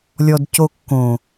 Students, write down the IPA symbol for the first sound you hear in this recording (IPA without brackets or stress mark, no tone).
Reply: lʲ